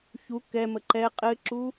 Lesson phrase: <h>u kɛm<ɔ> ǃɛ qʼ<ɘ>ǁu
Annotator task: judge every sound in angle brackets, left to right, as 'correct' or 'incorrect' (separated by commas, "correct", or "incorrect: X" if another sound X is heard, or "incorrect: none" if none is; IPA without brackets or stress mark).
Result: incorrect: ç, incorrect: ə, correct